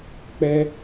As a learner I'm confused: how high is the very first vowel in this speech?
mid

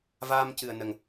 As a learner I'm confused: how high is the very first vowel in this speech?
low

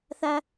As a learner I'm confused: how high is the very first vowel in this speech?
low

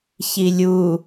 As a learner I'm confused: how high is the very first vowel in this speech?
high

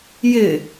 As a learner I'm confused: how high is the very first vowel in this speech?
high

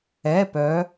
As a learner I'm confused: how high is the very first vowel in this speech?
mid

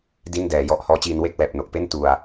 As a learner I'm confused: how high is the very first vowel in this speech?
high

